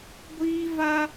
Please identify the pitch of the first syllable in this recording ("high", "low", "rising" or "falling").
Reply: high